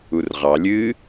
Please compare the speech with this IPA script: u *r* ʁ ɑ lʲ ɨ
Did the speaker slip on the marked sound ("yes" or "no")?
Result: no